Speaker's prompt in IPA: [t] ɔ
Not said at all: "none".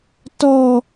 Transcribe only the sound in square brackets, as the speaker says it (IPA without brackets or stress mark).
t